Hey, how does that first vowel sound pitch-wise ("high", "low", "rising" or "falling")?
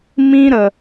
high